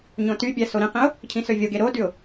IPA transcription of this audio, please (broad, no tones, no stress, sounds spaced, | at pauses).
ɲ õ t y bʲ æ s o ɾ ĩ q ĩ ʊ̯ | cʰ ĩ s ø vʲ o ɡ e ɾ o d y ʊ̯